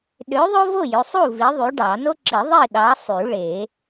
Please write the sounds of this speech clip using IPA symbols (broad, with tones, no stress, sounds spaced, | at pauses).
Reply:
ɗ ø˨˥ ðˤ o˥ v o˥˨ j ø˩˧˩ sˤ u˥˨ v i˨˥ ðˤ y˨˥ ɖ ɑ˨˩˦ n o˥ ǁ i˨˩˦ ðˤ i˥˨ ɗ ɑ˨˥ sˤ y˨˩˦ ɭ e˨˩˦